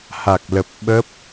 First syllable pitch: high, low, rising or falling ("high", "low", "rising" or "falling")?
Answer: low